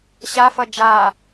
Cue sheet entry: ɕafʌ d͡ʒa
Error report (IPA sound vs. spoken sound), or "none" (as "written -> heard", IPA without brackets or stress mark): none